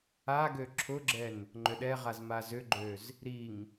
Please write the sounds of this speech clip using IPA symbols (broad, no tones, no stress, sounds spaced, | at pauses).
a ɡ ø ǁʰ ʊ ɡ͡ǁ ɛ n | ŋ͡ǃ ʏ ɗ ɛ ʁ a z m a z ʏ ɡ͡ǃ ø z | ɾ i ŋ